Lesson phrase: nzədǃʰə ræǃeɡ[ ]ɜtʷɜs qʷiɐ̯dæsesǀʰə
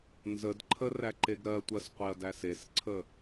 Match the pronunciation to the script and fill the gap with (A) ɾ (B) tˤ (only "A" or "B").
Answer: A